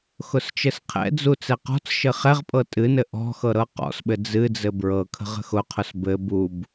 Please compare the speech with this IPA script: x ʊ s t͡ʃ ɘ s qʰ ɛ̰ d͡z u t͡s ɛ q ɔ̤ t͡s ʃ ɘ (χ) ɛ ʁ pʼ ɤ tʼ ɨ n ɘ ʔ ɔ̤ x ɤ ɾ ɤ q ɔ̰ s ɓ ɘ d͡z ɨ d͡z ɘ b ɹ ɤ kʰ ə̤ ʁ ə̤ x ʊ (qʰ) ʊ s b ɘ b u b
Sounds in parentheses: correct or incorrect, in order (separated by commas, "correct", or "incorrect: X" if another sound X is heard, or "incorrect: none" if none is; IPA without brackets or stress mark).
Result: correct, correct